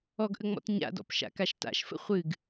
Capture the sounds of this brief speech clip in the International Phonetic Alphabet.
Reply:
ɔ ɡ ʔ ə ŋ͡m ɔ̰ t ɲ a̰ d ɔ̰ p ʃ a̰ k a ʃ t a̰ ʃ f ə̰ χʷ ɨ ɡ

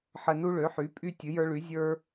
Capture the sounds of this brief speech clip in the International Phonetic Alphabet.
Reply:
ħ ə˦ n u˦ ɭ ø˨˥ ħ y˨˥ pʼ y˦ tʲ ɨ˨˥ j ə˞˦ ɭ y˨˥ zʲ ə˞˦

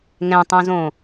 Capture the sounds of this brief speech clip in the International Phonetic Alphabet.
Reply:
ŋ ɛ̃ tˤ õ z õ

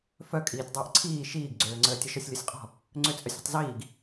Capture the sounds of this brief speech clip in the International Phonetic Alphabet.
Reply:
f œ kʼ iː tʲ dˤ əː ʔ ǀʰ iː ʃ iː ɡ ɡ͡ǀ øː ŋ͡ǀ əː tʲ ə ʃ ɔ sʲ lʲ ɔ sʲ qʼ ɔ̤ | ŋ͡ǀ ø t͡sʼ œ sʲ ɔ̤ tˤ z iː ɡ

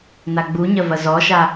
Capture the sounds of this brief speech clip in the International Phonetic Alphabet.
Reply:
n a ɡ͡b u ɲ ɐ v ɐ z ɔ ʃ a

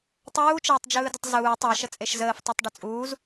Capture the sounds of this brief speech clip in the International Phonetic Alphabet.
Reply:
tˤ uː t͡ʃ əː tˤ d͡ʒ ɯː d ə tˤ z uː tˤ ɯ ʃ ə t͡sʼ e ʃ z əː f tˤ e tˤ ɖ ə t͡sʼ uː z

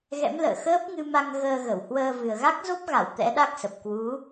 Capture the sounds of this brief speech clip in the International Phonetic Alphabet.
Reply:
ɣ ɛ̰˧˥ m l ə̰ː˧˨ x əː˦˥ p̚ ŋ ɨ˧ m a˧ ŋ ɣ əː˧ ɣ ə˧˩ w h w əː˧ v ɨ˨˩ ə̯ ɣ a˦˥ k̚ z o˦˥ p̚ ɣ a˧˩ w t̪ ɛ̰˧˥ ɗ a˦˥ k̚ s ə˨˩ p̚ k w u˨˦

